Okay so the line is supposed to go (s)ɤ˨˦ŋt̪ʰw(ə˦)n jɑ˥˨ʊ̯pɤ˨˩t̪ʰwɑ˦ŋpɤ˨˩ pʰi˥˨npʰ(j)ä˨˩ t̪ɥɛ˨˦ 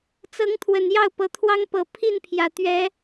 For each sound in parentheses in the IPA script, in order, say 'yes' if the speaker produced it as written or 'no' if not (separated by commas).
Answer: no, no, yes